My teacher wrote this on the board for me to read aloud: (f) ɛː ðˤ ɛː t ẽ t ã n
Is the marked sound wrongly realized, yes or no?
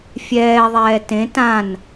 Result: yes